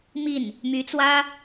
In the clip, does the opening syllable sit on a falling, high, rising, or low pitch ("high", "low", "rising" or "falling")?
falling